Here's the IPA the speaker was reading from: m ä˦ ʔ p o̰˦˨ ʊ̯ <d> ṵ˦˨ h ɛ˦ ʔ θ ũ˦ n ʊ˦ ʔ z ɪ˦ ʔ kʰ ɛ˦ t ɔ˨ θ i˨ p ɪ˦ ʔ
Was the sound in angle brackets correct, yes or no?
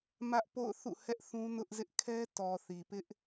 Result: no